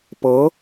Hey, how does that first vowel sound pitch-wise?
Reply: rising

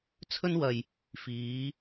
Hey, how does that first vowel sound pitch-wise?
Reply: high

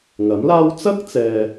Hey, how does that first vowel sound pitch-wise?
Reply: rising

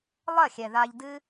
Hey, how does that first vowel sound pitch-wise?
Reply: falling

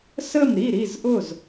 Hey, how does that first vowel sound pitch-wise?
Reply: falling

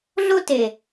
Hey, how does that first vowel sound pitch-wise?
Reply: high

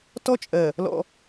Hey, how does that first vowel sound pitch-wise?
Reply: high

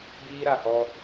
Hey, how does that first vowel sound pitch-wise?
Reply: high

